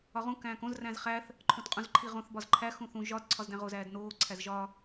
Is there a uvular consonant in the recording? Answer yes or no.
yes